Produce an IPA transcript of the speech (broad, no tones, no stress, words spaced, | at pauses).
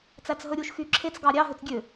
t͡sæt͡sɦɵɾʲuʃ xyǁʰet͡s ɡɑɾʲɑ ɦøt͡sɡʲø